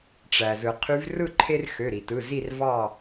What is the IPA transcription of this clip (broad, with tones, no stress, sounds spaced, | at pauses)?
ʈ͡ʂ æ˩ z ɯ˩ qʰ y˨˦ v r ɯ˥˨ ǃʰ e˦ r x ø˩˧˩ ɾ i˩ t ɯ˩˧˩ z i˥˨ r v ɑ˥˨